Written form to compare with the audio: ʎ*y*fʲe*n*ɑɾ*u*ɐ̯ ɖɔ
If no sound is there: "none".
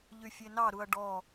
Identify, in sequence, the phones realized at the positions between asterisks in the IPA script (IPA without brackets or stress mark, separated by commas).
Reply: y, n, u